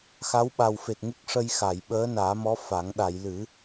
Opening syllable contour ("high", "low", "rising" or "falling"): rising